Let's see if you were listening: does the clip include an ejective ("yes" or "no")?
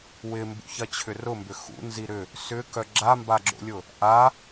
no